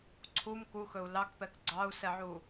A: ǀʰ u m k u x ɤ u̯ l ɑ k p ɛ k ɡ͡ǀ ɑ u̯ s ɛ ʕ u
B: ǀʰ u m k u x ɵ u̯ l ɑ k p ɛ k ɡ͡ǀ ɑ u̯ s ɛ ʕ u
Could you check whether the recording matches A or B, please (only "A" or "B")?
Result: B